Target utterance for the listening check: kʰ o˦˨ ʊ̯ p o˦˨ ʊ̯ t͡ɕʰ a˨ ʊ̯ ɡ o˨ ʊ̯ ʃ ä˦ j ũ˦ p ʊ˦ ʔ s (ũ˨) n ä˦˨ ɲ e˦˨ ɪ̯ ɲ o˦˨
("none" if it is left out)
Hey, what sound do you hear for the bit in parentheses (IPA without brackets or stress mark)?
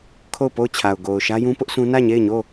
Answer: ũ˦